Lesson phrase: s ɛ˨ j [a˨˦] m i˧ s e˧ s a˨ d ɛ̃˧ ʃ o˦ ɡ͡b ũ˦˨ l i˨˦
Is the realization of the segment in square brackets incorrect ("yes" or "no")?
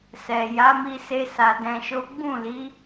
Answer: no